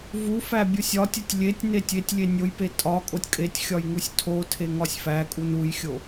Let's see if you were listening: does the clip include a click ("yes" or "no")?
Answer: no